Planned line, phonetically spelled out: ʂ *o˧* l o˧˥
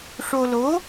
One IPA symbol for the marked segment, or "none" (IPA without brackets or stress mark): o˧